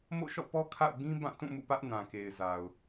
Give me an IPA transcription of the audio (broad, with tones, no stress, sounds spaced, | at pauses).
m o̰˦˨ ʃ ɔ̰˦˨ p ɔ˦ kʰ a̰˦˨ ʊ̯ ɡ ĩ˦ b ã˦˨ t ũ˦˨ m ṵ˦˨ p ä˦ ʔ n ã˨ k e˨ ɪ̯ z a˨ ʊ̯